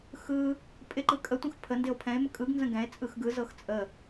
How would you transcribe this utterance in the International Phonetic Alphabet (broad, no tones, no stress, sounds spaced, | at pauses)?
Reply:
x ɯ | pʼ ɪ ǃ ɯ kʼ ə tʷ ə̃ x pʰ ə n d ɪ o̯ pʰ ɛ̃ e̯ m ə kʼ ɯ ɡ n z ə̃ ɡ ɛ̃ e̯ t͡sʼ ɯ x ɡ ɯ z ɤ x t͡sʼ ə